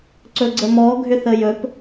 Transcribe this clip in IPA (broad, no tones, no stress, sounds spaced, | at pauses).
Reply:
ǀ ɵ ɡ͡ǀ ə m ɔ ɡʱ ʏ θ ə j ɵ p